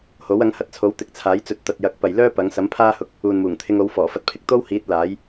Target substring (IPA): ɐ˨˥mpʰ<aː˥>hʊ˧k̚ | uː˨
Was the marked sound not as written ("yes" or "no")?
no